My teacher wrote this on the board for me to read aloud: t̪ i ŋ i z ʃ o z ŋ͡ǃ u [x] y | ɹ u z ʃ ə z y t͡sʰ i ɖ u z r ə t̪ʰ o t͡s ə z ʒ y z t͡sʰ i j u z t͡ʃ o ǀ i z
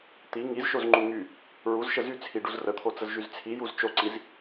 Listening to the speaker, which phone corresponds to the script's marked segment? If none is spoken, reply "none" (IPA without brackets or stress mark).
ŋ